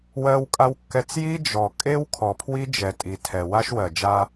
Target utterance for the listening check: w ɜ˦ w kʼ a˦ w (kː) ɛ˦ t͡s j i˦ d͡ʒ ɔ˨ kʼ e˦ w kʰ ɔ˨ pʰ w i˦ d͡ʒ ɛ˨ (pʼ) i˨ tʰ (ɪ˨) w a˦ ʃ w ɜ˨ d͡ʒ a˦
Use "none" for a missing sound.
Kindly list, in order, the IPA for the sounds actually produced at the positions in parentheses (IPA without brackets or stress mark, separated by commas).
kː, tʼ, ɛ˨